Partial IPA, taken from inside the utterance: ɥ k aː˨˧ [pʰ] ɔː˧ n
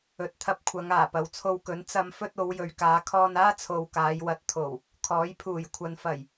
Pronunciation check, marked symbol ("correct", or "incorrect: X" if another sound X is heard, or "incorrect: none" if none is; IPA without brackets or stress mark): incorrect: kʰ